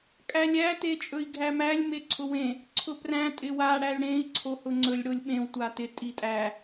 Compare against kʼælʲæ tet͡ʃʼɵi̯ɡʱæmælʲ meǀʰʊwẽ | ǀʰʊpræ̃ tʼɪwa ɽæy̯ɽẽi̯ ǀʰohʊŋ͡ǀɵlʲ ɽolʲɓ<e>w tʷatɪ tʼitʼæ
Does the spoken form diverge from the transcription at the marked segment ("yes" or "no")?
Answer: yes